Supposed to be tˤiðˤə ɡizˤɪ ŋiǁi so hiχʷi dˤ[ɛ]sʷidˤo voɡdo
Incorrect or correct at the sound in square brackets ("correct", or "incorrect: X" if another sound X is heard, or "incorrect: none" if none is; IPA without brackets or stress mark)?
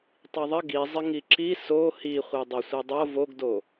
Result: incorrect: e